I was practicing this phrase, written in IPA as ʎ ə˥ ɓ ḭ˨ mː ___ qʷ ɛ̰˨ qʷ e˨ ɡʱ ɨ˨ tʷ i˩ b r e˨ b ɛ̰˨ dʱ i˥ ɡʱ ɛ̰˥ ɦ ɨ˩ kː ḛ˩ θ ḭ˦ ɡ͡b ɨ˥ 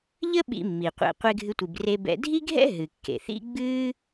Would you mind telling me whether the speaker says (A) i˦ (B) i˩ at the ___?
B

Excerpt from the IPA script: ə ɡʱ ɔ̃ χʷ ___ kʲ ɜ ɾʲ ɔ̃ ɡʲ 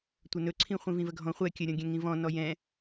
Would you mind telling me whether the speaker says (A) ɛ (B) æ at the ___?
A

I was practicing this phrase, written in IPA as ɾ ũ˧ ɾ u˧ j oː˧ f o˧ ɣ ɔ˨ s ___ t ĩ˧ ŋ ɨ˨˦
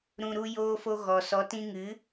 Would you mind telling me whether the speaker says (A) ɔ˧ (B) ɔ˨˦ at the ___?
B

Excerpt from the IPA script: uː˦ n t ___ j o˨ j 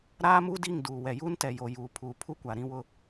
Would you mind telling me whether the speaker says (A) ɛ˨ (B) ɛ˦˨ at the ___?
A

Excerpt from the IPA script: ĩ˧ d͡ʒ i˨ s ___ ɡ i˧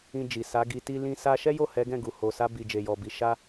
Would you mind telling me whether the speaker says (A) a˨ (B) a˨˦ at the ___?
B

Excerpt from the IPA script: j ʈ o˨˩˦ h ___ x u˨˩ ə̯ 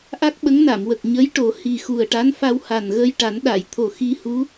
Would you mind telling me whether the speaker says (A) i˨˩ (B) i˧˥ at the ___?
A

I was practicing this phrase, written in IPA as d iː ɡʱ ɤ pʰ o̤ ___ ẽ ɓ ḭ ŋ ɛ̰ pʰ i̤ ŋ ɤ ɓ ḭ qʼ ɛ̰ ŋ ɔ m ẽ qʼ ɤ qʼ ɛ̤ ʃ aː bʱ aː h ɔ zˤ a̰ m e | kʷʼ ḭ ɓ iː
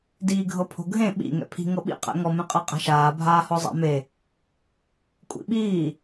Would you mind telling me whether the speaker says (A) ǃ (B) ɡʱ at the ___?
B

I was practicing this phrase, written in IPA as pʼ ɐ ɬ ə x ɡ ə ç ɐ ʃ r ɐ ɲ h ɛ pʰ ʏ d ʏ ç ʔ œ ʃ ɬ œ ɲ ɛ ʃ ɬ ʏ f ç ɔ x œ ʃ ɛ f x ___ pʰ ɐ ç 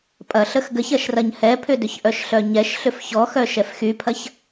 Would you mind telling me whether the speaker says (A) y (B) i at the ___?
A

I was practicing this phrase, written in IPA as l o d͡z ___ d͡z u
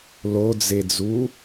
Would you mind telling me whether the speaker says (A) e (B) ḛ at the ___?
A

